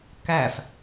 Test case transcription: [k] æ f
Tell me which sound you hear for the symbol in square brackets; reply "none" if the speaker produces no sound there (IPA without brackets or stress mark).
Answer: k